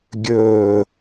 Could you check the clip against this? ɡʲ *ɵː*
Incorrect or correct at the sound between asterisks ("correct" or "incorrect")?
correct